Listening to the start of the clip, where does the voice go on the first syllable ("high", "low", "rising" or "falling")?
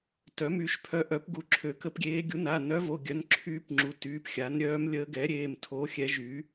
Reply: rising